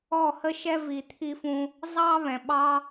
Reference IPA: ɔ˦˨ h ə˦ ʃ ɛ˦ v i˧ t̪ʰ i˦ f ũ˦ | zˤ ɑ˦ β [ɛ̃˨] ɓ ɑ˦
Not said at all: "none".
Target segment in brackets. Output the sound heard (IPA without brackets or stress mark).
ɛ̃˨